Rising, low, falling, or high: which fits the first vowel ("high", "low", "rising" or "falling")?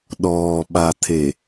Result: low